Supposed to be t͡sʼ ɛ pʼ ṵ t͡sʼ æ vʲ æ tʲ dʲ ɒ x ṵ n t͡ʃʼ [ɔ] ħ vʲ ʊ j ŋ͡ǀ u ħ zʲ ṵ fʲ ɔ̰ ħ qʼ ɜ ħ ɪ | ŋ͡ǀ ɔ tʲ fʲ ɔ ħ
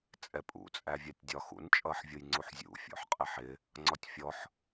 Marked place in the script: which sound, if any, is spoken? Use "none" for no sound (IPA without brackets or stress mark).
ʌ